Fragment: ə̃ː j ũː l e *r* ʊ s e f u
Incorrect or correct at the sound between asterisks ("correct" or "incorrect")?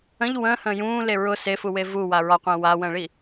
incorrect